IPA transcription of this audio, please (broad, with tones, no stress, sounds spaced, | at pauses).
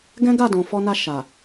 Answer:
ɡ ɛ̃˦ ɡ a˦˨ d ɔ̃˨ f ɔ˧ n a˧ ʃ a˨